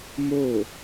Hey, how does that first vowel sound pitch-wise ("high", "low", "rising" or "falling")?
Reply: falling